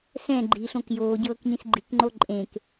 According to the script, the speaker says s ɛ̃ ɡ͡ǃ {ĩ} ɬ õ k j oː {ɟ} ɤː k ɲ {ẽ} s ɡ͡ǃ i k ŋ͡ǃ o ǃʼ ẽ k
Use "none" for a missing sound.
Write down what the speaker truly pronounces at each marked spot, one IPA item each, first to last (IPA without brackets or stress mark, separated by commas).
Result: i, ɟ, ĩ